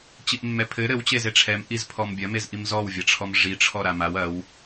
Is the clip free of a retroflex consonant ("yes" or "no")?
no